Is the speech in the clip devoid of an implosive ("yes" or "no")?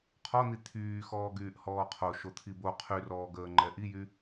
yes